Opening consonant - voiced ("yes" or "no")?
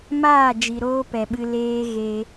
yes